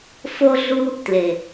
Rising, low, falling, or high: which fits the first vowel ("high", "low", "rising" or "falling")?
high